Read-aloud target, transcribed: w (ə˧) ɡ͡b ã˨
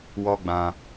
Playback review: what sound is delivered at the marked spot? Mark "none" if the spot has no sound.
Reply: ɔ˧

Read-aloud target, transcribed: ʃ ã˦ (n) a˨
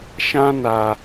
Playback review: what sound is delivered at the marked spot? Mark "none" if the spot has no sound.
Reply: n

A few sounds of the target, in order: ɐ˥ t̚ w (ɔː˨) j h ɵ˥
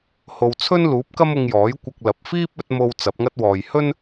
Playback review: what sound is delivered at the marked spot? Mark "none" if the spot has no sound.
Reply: ɔː˨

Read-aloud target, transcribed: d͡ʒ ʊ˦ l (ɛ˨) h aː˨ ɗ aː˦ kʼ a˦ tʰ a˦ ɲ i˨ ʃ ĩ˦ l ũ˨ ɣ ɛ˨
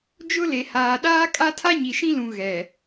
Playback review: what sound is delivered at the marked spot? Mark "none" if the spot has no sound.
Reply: e˨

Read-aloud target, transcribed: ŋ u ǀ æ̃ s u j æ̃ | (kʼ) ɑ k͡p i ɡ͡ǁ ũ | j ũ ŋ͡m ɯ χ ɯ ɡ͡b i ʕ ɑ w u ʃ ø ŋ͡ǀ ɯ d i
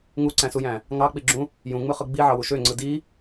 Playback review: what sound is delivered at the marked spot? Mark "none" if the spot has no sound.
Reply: ŋ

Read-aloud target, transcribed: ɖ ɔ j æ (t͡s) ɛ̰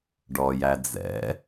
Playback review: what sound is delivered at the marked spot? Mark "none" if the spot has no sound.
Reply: d͡z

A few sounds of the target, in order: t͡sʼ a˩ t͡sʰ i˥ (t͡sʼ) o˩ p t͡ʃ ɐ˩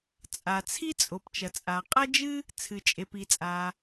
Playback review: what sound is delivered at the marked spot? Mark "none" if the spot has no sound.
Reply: t͡sʼ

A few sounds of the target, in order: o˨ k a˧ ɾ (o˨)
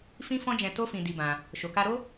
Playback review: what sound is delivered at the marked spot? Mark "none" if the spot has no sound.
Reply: o˦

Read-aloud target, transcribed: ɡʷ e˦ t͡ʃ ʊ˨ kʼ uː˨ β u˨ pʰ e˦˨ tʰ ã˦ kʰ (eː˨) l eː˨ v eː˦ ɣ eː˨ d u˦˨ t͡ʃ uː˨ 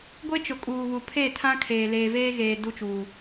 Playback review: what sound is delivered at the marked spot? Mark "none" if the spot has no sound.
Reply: eː˨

